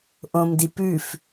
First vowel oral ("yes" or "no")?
no